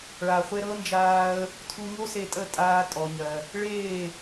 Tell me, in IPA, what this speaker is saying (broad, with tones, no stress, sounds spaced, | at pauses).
ɭ a˨ χʷ e˧ ɾ ɤ˦ n d͡ʒ aː˧ ə̯ | tʰ u˧ ɲ o˦ s e˧ tʼ ə˦˨ tʼ aː˧ tʼ ɔ˨ ɲ ɜ˨ | ɭ eː˦˨